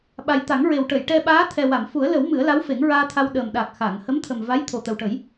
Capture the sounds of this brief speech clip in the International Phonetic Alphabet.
ɓ a˨˩ j t̪ a˨˩˦ ŋ ɹ e˨˩ w ʈ ə˨˩˨ j ʈ ɛ˧ ɓ aː˧˥ t̪ʰ ɛ˨˩ w a˨˩˨ m f u˨˩˦ ə̯ l ə˨˩˦ w m ɨ˨˩˦ ə̯ l a˧˥ w f e˨˩˦ ŋ ɹ aː˧ t̪ʰ a˧ w ɗ əː˨˩ m ɗ a˨˩ k̚ x a˨˩˨ ŋ h ə˧˥ m t̪ʰ ə˨˩ m v a˧˥ j t̪ʰ o˨˩ t̪ ə˨˩ w ʈ ə˨˩˦ j

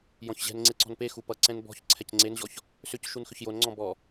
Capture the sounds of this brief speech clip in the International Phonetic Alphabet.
j ɔ̃ ç ʑ ɛ̤ n ŋ͡ǀ e ǀ ɔ̤ n p e x u p ʌ ǀ ɛ̃ n b ɔ̤ ç ǀʰ ɛ c ŋ͡ǀ e n ʑ ɔ ç | s ʏ c ʃ u n x ʏ ç j o n ŋ͡ǀ ɔ̃ b ɔ

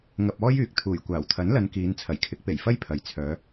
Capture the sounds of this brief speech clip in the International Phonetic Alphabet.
ŋ ɐ˧ p̚ ɔː˥ j yː˨ k̚ t̪ʰ uː˨˩ j kʷ aː˨˩ w t̪ʰ ɐ˨˥ n l ɐ˨˧ n k iː˨˧ n t͡sʰ ɐ˨˩ j kʰ ɪ˨˥ k̚ p e˨˩ j f ɐ˥ j pʰ ɐ˨ j t͡sʰ œː˨˧

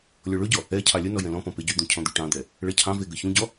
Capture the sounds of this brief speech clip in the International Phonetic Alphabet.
lʲ ɔ ɭ ɵ ɟ ɔ | ɛ cʰ ɑ lʲ ə n ɔ j ɛ̃ l ɔ̃ p ɔ̃ p e ɟ y d̪ ũ cʰ ɔ̃ d̪ y ʈ ɑ̃ d̪ ɛ | ɭ ɛ cʰ ɑ̃ v e ɡ ə ç ũ ɟ ɔ

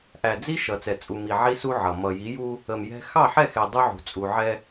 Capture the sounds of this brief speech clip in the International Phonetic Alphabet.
ʔ æ˨ d͡z i˦ ʃ ʌ˨ t͡s ɛ˨ t͡sʼ u˨ m i˨ ʕ i˦ s u˦ ʕ ʌ˨ m ʌ˨ j i˨˦ j u˦ | ə˨ m j ɛ̤˦ x ɑ˦˨ ħ ɛ˦˨ x ɛ˨ dˤ u˦ ʕ ṳ˨ t͡sʼ u˨ ʕ ɛ˦

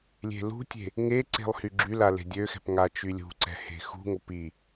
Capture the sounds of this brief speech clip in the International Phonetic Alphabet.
lʲ e̤ l ṳ tʲ e̤ | ŋ e ǀ e̤ lˠ h y ɡ͡ǁ y l a l e̤ dʲ ø x ɛ̤ p ŋ a t͡ʃ y lʲ ṳ ǀ ɛ̤ h e̤ x ṳ ŋ o p i

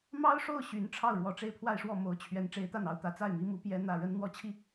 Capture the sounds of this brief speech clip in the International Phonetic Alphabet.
m ɑ˥ ʊ̯ ʂ o˥˩ ʊ̯ ɕ y˧˥ n ʈ͡ʂʰ ɑ˥˩ ʊ̯ ɻ w ɔ˨˩ ʈ͡ʂ e˥˧ ɪ̯ pʰ w a˥˧ ɪ̯ ʂ w ɔ˥˩ m o˧˥ ʊ̯ t͡ɕʰ ɥ ɛ˧˥ n ʈ͡ʂ e˧˥ ɪ̯ t̪ a˥˩ n ɑ˧˥ ʊ̯ t̪ ä˧˥ t͡s a˥˩ ɪ̯ m i˧˥ m u˧˥ p j ɛ˥ n̪ ä˥˩ ɻ ə˥ n n̪ w ɔ˥ t͡ɕʰ i˥˩

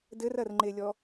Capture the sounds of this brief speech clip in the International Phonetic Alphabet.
d ɘ r ɐ r ŋ͡ǃ e lʲ ɔ

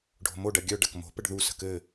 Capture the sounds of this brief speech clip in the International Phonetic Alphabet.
ɖʱ o̤ m o ɖ ɐ ɡʲ œ ɖ ɐ k m o̤ p ə ɖ ð u s ə̤ k ɘ

